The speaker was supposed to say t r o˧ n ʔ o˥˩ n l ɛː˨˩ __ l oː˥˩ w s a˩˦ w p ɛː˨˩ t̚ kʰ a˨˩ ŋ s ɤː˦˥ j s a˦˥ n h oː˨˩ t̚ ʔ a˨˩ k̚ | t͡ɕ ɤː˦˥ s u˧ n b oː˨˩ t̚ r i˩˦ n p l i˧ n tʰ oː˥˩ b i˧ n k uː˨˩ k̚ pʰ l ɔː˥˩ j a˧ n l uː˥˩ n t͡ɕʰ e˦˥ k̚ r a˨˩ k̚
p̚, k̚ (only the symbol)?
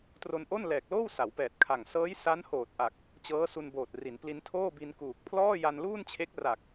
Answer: k̚